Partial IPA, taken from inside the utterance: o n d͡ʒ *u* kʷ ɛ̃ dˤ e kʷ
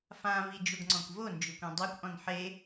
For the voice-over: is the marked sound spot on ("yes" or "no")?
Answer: no